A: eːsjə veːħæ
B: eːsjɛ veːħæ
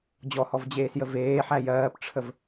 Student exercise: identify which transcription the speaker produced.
A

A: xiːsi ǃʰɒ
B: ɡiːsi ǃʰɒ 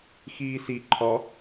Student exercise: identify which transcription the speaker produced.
A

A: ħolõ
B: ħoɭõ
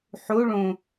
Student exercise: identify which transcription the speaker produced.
B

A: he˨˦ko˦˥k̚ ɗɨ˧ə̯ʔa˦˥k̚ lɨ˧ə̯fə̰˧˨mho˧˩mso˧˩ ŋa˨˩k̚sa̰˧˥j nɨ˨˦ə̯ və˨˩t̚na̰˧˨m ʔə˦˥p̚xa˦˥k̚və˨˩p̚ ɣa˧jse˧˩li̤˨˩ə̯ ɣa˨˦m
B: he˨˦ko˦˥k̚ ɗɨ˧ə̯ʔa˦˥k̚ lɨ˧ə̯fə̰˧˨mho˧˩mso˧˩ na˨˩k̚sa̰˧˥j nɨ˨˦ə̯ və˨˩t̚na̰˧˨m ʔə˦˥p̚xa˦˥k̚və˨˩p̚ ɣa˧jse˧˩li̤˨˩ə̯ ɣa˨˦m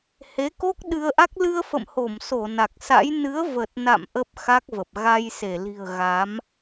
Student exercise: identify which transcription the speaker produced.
B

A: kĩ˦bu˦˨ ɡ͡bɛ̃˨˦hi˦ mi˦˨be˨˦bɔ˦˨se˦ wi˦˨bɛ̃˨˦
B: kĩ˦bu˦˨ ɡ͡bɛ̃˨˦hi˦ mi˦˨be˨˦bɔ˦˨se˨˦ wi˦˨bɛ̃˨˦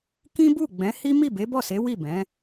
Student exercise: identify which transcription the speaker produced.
B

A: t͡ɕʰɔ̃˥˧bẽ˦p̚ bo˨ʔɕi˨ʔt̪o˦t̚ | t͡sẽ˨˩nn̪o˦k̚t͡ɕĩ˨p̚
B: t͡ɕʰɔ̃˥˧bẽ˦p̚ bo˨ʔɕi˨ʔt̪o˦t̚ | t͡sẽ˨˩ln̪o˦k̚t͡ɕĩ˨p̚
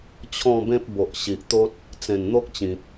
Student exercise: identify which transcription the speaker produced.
A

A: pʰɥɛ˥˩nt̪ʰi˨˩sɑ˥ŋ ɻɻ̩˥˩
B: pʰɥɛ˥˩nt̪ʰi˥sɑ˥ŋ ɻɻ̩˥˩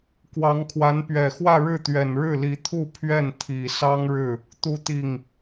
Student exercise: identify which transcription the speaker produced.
A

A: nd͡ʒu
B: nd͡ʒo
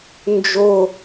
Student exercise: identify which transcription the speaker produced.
B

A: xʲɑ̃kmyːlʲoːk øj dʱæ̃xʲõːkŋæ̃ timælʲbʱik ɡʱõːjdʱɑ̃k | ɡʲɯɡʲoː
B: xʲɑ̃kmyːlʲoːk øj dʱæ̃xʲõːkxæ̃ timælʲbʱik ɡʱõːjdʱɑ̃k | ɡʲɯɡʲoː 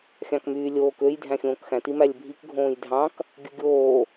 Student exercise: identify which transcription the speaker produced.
B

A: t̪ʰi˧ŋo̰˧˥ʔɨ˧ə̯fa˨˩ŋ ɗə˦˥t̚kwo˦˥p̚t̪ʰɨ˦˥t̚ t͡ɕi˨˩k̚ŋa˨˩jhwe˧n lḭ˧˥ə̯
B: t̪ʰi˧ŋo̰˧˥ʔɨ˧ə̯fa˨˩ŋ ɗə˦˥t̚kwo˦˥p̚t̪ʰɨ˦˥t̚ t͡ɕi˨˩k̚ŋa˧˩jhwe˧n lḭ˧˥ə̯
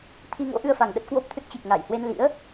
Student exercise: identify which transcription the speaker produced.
B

